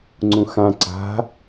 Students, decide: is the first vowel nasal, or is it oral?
nasal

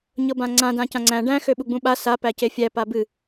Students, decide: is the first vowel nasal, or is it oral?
oral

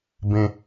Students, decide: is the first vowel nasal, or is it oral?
nasal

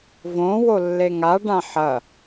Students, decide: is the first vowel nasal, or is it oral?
nasal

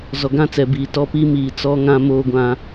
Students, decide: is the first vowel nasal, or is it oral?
oral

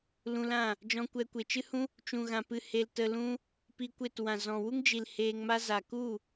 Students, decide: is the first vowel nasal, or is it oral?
nasal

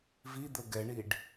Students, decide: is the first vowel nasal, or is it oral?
oral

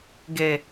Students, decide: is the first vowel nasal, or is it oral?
oral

